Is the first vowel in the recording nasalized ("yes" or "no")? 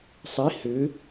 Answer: no